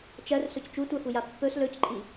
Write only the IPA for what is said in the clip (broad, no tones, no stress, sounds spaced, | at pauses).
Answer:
t͡ʃ ɜ r s ɵ c t͡ʃ u tʷ ɜ f u j a pː ɵ s l ɵ c ǃʼ i